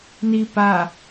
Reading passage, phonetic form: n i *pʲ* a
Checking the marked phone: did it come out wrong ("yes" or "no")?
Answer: yes